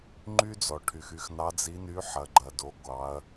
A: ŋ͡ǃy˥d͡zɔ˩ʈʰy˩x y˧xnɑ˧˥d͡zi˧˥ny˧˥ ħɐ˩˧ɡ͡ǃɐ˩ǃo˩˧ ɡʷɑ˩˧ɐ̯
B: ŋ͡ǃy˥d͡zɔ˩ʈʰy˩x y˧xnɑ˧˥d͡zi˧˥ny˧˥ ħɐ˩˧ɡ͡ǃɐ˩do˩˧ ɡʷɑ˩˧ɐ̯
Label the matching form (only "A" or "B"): B